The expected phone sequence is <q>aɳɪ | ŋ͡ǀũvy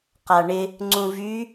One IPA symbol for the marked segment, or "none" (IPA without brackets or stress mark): q